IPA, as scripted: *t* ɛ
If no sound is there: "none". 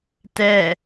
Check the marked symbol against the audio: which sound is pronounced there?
t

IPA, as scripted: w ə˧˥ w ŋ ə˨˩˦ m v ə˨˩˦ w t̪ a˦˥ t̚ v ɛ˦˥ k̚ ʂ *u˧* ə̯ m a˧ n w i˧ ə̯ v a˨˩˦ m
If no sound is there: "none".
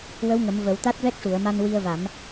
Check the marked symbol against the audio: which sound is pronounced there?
u˨˩˨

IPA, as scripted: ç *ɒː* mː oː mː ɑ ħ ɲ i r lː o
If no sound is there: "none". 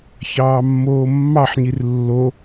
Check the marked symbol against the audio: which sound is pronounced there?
ɑː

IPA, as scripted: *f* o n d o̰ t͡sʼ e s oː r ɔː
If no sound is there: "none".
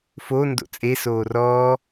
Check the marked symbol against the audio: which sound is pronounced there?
f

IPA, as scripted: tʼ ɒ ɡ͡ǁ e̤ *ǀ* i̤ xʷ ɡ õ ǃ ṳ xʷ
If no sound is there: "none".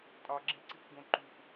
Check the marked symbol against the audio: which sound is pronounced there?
ǀ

